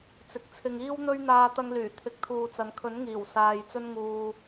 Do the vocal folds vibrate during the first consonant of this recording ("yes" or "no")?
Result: no